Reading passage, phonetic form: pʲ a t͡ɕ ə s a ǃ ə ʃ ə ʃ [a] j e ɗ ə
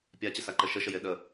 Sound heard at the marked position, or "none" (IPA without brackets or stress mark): ə